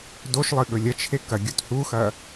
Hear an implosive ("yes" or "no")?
yes